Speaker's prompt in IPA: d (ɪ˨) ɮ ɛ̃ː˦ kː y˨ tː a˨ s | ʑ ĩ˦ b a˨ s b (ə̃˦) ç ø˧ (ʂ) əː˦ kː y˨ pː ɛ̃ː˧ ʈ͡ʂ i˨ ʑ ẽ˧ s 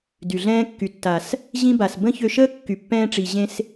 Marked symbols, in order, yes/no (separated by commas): no, yes, no